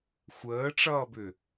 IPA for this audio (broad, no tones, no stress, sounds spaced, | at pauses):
xʷ əː ʈ͡ʂ ʌː b ʏ